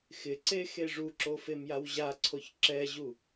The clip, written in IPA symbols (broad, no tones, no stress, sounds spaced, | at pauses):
x ɪ ǀ e x e ʐ u ǁ o f e m j a w ʑ a ǀʰ o ç ǁ ɛ ʑ u